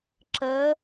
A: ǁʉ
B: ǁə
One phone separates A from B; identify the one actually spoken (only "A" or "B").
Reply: B